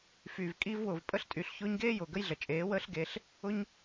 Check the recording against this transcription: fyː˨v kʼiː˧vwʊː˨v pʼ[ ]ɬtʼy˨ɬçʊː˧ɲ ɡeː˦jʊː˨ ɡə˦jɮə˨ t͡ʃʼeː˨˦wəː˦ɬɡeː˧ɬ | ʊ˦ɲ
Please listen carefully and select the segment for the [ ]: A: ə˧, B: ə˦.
A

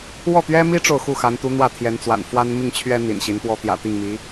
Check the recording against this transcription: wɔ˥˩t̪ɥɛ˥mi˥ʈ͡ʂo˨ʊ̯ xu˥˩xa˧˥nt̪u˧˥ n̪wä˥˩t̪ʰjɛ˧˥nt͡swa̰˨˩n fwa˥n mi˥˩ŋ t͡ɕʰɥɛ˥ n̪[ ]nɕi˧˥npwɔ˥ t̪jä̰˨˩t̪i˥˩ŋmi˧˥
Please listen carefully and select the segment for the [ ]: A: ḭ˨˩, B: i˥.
A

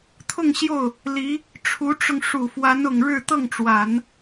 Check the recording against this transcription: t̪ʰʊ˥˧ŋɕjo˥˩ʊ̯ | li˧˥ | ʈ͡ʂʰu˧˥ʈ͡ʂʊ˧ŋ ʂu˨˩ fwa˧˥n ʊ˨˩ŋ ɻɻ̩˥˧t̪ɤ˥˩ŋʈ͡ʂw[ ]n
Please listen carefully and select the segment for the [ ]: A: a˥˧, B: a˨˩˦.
B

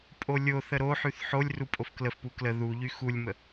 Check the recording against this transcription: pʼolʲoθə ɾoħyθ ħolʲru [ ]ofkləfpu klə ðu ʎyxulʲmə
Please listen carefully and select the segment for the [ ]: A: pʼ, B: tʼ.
A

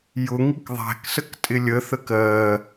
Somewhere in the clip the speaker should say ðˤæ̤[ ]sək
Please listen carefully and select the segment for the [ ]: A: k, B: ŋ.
A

